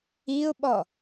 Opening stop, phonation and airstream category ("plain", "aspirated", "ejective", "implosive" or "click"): implosive